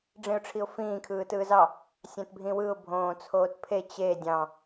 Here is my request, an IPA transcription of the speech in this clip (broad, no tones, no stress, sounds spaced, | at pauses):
ɖ͡ʐ ĩ ʊ̯ ʈ͡ʂʰ i ʊ̯ f ĩː kʰ ɯː t ɯː z ɑ | sʲ æ̃ t bʱ ĩ w ɯ ʊ̯ bʱ õː t͡sʰ oː t pʰ e t͡ɕ e dʲ ɑ̃